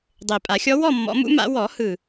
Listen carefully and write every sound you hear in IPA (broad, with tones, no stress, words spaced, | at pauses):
dˤe˨˩pʼa˨˩˦xʲɔ˧˥ wɔ˥˨mːɔ̰˨˩˦mṵ˧˥ma̰˨˩˦ wɔ˨˩˦hɯ˨˩